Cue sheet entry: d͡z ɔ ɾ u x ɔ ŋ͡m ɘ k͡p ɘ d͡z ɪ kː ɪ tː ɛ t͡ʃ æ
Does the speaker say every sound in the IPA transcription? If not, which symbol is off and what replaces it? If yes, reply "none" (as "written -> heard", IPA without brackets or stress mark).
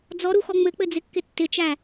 ɛ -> ɪ